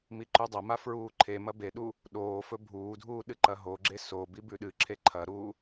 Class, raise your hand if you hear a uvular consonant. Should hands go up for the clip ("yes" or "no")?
no